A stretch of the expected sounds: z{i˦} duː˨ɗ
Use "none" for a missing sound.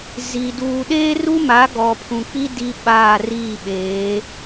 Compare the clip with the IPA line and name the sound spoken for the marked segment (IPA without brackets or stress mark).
i˨